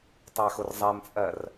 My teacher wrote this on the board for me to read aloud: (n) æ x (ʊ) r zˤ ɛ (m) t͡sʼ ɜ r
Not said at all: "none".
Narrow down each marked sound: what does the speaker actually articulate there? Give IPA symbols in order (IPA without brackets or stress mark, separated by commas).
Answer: tˤ, ʊ, m